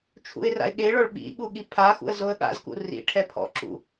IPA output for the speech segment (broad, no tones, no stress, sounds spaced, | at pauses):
t͡ʃʰ ṵ ɪ̯ r a̰ ɪ̯ ɠ e ɭ ɔ ɭ ɓ ḭ ɠ u ɠ i pʰ a x ṵ ə̯ z o ə̯ ɠ a̰ z k ṵ r ḭ ʈʰ ɛ pʰ ɔ̰ ǁ ṵ